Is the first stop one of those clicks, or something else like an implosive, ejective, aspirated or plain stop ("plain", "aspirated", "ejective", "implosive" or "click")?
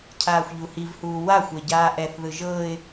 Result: aspirated